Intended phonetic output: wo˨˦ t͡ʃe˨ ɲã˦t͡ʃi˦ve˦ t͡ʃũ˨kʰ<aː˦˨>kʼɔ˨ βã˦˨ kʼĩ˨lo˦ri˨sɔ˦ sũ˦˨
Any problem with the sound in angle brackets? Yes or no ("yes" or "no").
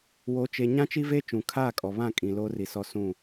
no